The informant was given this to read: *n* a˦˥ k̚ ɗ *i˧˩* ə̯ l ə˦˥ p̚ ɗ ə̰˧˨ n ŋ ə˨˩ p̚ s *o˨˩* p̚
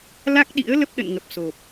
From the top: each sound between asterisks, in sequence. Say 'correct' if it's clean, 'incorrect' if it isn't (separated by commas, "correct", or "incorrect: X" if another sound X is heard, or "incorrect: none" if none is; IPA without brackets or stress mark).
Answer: incorrect: l, incorrect: ḭ˧˥, correct